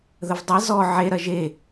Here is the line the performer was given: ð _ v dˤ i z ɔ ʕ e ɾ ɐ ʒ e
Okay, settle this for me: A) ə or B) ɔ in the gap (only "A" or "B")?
A